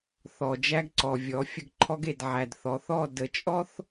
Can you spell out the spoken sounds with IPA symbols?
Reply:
θɔ˨d͡ʒæ˦ɡǀɔ˨ vʲɔ˨˦fʲə˦ɡǃʰɔ˦ɡ e˨dʕæ˨d θɔ˨θɔ˦˨ də˨t͡ʃʼɔ˦θ

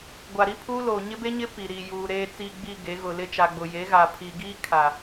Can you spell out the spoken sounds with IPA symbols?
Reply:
ɡʷa˨ɾi˦pʰuː˦loː˨ ɲɪ˦be˦ɲɪ˦ pi˨ ɾi˨juː˨ ɾeː˨t͡siː˨ɡ͡bi˨ ɡe˨˦ɣʊ˨lɪ˦ t͡ʃa˨ɡ͡bʊ˨ je˨˦ɣa˨ pʰi˨ ɡiː˦kʰa˨

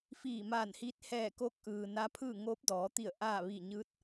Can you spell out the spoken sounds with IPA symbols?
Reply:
fiː˧˩maː˧˩nhiː˧˥t̚ hɛː˧˩ko˧˥k̚ʔɯː˩ na˧˥pʰɯː˥˨ ŋoː˧˥p̚dɔː˩˧t̪i˧˩ə̯ ʔaː˥˨ ʋi˧˩ɲɯː˧˥t̚

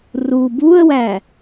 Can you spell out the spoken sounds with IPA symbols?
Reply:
ru buə̯wæ

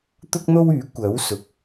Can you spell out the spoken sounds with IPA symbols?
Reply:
t̪ʊ˥k̚n̪o˥wyː˨˥ kʷɐ˨˥w sʊ˨˥k̚

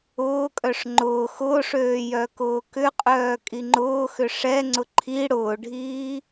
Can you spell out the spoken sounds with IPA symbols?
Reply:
ʊːkʼœʂ ŋ͡ǃʊː xʊːʂøː jœkʊːkʏqʼœː kʼiŋ͡ǃʊːxʏ ʂɛŋ͡ǀʊ ǃʰi ɽʊːɖʱiː

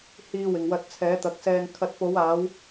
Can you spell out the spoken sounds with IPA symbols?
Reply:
hiː˧wɪ˨ŋwɐ˧t̚ t͡sʰɛː˨˥t̪ɐ˨˥k̚sɛː˧ŋ kʰɐ˨˥t̚po˨˧waː˨˧w

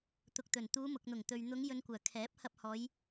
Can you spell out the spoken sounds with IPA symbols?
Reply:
t̪ʊ˨k̚t̪ɵ˨˩nt̪uː˨˧ mʊ˨k̚n̪ʊ˨˩ŋ t̪ɵ˨ɥ n̪ʊ˨˧ŋjɵ˨n kʷœː˨˩kʰɛː˨˥p̚hɐ˧p̚ hɔː˨˧j

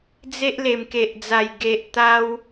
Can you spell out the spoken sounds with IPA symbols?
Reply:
d͡ze˦ʔ le˨˩mke˨ʔd͡za˨˩j ɡe˨ʔ t̪a˦w

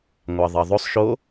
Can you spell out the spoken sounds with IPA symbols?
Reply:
ŋʷɑðˤɑðˤosˤ ʃo

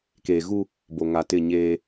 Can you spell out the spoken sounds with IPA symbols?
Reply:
keː˨ɣu˦ | bo˨ŋa˨tɪ˦˨ ɲeː˦

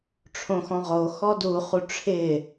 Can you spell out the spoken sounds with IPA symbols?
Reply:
ʈ͡ʂʰõxɔ̃ʁo xɔduχu ʈ͡ʂʰɪ

